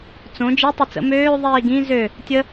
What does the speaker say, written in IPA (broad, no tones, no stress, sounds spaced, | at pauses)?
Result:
t͡s õ d͡ʒ i tˤ i t͡s ə̰ m øː ðˤ iː ɡ ĩ z ø | tʲ ə